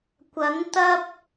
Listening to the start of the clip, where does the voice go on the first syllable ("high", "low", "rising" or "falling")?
rising